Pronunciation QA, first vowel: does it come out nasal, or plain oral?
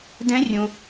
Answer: nasal